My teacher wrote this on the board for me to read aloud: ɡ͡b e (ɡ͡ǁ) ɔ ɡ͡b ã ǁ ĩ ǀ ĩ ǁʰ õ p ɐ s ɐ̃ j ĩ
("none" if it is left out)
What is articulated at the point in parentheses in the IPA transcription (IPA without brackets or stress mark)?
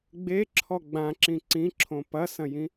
ǁʰ